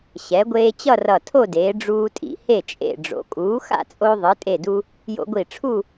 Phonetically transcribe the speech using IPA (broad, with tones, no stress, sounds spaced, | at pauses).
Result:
ɕ ɛ˩˧ ɡʷ eː˧ t͡ɕ ʌ˥˧ r ʌ˧˩ tʰ o˥˧ d eː˩˧ ɖ͡ʐ uː˧ tʼ ḭ˧ h e˧˩ t͡ʃʼ ḛ˧˩ ɖ͡ʐ o̰˩˧ kʼ uː˩˧ x a̰˥˧ t͡sʼ o˧ ðˤ ɯ˩˧ tʼ e˧˩ d u˧ | j o̰˧ ɡʷ i˧˩ ʈ͡ʂʰ u˥˧